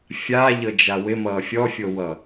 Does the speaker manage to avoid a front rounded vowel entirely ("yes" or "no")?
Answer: yes